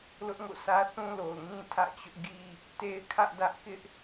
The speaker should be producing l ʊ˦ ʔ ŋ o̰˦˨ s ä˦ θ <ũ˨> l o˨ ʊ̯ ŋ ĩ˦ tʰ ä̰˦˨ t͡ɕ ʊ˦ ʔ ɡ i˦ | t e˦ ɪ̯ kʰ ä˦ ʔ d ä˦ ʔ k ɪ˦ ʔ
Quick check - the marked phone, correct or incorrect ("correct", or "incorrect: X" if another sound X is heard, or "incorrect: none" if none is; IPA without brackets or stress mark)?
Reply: incorrect: ũ˦